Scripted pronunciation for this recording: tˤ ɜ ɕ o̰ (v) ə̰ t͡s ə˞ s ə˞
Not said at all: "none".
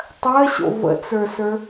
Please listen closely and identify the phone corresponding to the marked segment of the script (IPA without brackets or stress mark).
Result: v